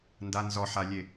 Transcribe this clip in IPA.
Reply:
n d a n z ɔ ħ a lʲ e

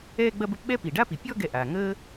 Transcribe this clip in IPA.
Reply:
ɛː˦ ɡ͡b ɐ˦ b ə˦ p ɓ ɛ˥ p i˩ ɖ a˥ p i˩ pʲ ɔ˦ ɡ ɛ˨ ʔ a˩ ŋ əː˥

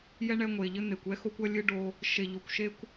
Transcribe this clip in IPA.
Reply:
j ɛ˥ ɳ ɛ˦ ŋʷ e˨ ʎ ɘ˦ n̪ e˨ kʷ ɛ˥ x o˦ kʷ ɐ˥ lʲ ɨ˥ ɖ o˦ | ʃ e˨ ʎ o˨ kʷ ʃ e˦ kʷ

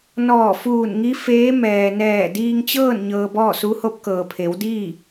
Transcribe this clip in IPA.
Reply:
n ɔː˧˩ f uː˧˩ n ŋ i˧˥ f eː˧˥ m ɛː˩ n ɛː˧˩ d iː˧ ŋ t͡ɕ ɤː˥˨ n ɲ ɤː˧ b ɔː˥˨ s u˧˥ h o˧˥ p̚ k ɤː˩ pʰ e˩˧ w d iː˥˨

